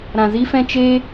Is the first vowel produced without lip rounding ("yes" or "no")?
yes